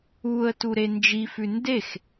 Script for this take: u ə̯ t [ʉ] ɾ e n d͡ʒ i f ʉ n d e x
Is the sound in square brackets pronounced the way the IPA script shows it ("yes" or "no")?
no